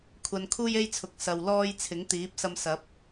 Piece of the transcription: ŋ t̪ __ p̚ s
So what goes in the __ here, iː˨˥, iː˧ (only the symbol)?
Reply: iː˨˥